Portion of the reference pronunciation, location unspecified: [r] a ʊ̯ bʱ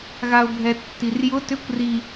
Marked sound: incorrect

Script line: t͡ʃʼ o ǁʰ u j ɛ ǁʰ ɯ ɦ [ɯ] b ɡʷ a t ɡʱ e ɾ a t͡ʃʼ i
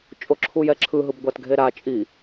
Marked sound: correct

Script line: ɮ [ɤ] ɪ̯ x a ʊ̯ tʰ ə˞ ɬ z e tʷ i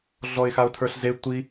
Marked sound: incorrect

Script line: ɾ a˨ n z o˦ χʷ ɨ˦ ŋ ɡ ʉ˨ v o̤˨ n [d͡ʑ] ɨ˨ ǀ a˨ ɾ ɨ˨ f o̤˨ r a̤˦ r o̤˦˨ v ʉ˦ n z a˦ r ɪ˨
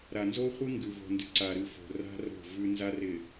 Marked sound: incorrect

